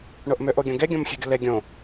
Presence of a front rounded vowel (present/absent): present